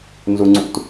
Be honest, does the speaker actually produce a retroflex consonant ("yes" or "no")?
no